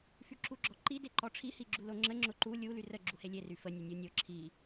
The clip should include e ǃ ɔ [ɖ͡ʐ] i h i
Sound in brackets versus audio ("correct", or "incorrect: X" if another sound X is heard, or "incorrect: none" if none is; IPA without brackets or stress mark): incorrect: ʈ͡ʂʰ